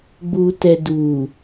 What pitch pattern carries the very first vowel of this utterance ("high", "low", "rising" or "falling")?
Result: low